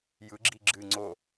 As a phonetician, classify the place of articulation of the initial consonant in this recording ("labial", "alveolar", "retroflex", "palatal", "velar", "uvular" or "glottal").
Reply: palatal